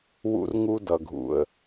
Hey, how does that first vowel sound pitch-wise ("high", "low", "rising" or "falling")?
high